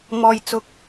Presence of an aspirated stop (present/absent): absent